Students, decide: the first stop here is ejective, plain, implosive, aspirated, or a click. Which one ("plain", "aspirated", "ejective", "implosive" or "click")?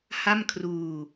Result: aspirated